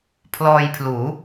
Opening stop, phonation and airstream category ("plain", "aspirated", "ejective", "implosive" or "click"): aspirated